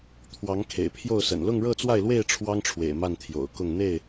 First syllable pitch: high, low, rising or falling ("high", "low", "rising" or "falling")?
rising